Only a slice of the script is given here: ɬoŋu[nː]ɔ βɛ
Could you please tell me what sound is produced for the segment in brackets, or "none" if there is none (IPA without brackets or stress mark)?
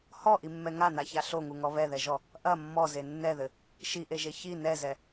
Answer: ŋ